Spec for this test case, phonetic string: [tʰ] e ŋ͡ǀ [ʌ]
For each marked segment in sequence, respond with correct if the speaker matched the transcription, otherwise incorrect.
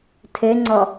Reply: correct, correct

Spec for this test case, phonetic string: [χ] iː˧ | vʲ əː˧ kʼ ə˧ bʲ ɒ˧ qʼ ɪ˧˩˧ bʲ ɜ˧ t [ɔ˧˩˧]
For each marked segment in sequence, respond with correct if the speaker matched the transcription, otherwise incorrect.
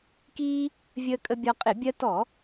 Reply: incorrect: k, correct

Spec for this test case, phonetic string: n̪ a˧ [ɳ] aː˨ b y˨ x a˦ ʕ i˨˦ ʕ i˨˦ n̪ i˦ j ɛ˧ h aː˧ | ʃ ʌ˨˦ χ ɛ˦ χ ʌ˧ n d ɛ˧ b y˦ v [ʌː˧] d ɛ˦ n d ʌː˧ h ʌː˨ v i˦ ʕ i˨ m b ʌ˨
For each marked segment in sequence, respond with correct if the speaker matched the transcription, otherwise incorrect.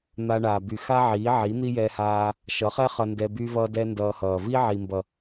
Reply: correct, incorrect: ʌː˦

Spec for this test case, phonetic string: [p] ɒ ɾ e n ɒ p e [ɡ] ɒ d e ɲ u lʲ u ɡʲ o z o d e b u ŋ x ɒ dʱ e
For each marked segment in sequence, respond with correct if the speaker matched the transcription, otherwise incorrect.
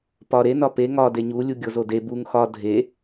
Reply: correct, incorrect: ŋ

